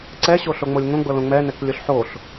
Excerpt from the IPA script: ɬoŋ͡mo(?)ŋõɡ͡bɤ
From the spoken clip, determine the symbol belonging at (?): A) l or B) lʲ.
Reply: B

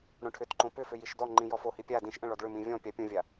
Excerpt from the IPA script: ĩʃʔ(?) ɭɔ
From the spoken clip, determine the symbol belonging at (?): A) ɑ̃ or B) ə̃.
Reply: B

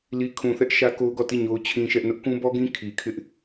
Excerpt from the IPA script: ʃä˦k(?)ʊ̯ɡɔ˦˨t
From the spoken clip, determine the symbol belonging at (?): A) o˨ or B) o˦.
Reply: B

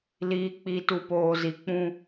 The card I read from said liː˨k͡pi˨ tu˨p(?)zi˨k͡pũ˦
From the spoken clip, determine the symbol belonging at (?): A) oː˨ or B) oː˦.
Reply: A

